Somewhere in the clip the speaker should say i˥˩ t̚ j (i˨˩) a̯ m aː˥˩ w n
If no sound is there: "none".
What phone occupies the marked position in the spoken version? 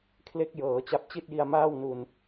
i˧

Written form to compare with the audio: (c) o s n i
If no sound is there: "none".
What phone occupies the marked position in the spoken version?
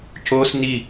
c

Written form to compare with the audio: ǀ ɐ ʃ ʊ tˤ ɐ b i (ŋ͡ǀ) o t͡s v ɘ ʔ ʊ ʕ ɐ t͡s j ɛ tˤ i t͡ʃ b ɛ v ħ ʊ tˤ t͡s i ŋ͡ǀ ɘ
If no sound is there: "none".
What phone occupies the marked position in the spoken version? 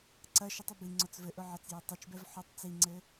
ŋ͡ǀ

